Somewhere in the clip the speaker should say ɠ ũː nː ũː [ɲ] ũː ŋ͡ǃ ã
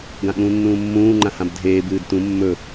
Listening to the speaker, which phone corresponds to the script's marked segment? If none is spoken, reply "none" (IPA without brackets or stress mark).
mː